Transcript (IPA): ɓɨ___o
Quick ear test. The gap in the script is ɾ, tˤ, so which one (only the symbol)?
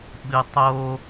tˤ